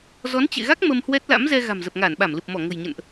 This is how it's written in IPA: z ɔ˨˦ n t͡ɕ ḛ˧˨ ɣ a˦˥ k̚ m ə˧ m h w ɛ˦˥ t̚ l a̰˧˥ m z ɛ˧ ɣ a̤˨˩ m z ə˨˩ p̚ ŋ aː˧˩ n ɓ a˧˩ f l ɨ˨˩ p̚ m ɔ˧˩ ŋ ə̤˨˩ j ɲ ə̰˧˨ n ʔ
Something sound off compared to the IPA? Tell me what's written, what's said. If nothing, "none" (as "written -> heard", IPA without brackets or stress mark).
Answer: f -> m